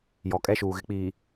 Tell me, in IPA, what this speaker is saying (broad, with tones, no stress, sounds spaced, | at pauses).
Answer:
j ɔ˨ kʼ ɛ˦ ʃ uː˨ ɣ ɪ˨ k͡p iː˨